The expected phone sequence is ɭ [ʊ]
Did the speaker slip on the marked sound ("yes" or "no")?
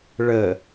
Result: yes